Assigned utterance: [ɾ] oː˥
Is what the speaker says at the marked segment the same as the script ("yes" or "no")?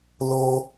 no